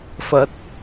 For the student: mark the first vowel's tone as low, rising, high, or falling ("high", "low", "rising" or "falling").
rising